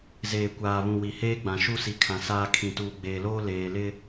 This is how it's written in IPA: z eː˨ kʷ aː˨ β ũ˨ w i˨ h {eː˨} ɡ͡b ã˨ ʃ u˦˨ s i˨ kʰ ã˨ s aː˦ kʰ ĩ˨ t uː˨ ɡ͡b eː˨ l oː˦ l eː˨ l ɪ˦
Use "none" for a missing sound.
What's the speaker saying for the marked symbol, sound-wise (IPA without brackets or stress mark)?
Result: eː˦